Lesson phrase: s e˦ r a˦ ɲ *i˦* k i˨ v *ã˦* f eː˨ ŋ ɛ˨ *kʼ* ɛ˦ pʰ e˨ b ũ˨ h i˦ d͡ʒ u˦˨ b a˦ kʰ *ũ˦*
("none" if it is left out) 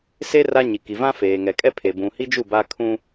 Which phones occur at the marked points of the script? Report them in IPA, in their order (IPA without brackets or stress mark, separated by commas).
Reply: i˨, ã˦, kʼ, ũ˦